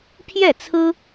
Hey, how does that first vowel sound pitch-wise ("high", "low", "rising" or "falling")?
falling